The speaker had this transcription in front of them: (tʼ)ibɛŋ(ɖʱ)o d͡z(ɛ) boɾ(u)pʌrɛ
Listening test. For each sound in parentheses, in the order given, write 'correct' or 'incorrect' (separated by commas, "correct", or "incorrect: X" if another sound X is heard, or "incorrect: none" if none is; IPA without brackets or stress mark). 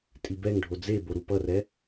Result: correct, correct, incorrect: e, correct